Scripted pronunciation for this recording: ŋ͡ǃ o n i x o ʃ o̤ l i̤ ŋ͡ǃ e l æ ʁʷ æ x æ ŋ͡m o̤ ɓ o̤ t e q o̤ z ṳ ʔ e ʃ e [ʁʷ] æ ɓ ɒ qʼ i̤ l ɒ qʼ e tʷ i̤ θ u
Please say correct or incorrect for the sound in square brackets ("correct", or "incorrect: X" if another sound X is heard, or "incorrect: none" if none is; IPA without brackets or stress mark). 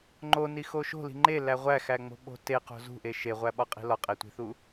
correct